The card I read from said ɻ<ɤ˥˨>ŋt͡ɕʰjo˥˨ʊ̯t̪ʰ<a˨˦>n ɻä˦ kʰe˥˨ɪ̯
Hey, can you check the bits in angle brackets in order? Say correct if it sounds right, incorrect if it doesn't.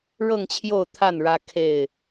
correct, incorrect

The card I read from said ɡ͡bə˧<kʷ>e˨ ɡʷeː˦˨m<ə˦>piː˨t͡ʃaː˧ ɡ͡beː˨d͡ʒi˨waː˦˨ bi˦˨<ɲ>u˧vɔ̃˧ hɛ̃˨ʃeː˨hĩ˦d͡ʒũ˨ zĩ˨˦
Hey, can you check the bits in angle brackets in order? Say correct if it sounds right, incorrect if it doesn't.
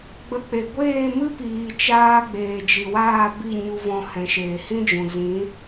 incorrect, incorrect, correct

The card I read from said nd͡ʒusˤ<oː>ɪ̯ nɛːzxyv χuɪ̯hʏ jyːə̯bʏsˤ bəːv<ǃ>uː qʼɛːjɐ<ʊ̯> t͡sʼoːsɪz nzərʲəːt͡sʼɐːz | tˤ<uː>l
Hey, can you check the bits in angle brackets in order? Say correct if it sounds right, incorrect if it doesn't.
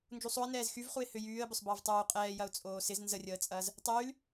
incorrect, incorrect, correct, incorrect

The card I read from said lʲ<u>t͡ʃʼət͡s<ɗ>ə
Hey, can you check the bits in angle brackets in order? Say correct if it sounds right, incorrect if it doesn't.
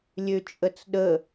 incorrect, correct

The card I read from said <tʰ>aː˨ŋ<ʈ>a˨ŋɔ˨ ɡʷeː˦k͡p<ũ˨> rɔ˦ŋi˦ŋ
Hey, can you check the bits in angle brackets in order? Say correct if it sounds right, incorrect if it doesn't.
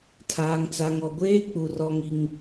correct, incorrect, incorrect

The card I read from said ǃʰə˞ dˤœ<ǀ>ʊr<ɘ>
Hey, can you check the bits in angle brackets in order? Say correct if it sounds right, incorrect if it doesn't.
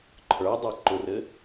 incorrect, correct

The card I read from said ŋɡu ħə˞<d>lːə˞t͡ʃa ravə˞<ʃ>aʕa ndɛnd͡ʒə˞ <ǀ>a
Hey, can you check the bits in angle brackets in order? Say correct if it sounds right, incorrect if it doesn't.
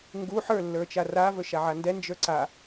incorrect, correct, correct

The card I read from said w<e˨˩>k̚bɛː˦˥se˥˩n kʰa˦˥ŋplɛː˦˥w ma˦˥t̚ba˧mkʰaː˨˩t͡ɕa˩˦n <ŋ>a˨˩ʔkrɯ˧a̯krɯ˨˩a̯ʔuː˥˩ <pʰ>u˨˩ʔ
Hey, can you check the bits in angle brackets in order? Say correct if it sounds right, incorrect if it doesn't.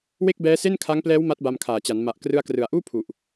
incorrect, incorrect, correct

